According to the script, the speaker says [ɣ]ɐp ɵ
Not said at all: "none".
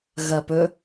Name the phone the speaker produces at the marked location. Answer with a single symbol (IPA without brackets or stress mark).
ɣ